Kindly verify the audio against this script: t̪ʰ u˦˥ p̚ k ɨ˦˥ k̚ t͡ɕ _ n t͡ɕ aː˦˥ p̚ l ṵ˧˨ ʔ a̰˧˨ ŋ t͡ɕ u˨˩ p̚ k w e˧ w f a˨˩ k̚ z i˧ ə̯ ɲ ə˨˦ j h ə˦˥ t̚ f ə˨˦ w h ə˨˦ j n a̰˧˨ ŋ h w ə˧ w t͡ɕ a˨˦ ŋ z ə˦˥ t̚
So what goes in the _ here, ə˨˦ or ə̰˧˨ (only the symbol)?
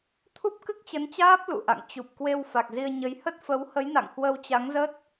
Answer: ə˨˦